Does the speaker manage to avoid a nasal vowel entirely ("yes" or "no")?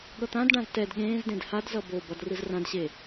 no